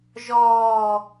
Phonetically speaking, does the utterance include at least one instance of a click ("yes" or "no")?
no